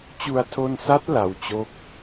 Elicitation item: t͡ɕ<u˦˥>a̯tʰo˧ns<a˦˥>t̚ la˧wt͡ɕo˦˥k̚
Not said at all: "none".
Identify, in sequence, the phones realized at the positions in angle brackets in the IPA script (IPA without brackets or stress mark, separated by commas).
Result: u˧, a˦˥